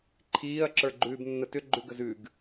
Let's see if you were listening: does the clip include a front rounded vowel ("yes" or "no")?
yes